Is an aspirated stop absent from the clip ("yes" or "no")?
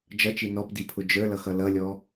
no